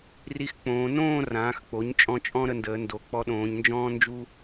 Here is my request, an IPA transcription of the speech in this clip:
r i˧ x k͡p õː˩˧ n õː˥˧ r ãː˩˧ x k͡p o˩˧ ɲ t͡ʃʼ ɔ̃˧ t͡ʃʼ ɔ̃˥ ɾ ə˧ n d əː˩˧ n d o˩˧ k͡p ɔ˧ ɗ õː˩˧ ɲ n d͡ʒ ɔ̃ː˥ n d͡ʒ u˥

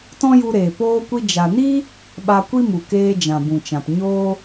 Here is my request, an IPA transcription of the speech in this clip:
t ɔ̃˦ j u˧ ɾ eː˨ p oː˦ kʷ i˦ d͡ʒ a˨ n i˦ | ɓ a˧ kʷ i˦ m u˨ k eː˧ d͡ʒ ã˨ b ũ˨ t͡ʃ ã˨ p ɲ oː˧

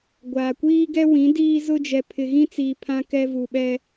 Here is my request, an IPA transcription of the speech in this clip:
ɡʷ aː˨ kʷ iː˦ ɡ ɛ˦ w ĩ˨˦ d iː˦ z ʊ˦ d͡ʒ ɛ˨ pʰ ɪ˨ ɣ ĩ˦ t͡s iː˨ pʰ ã˦ k ɛ˦ v u˨ ɓ ɛ˦

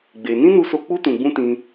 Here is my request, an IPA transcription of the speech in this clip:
ɡ͡b e˧ n ĩ˦ n u˧ s o˧ k͡p u˦ t ũ˧ ɡ͡b ũ˦ t ĩ˧

